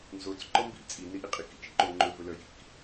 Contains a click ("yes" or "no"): yes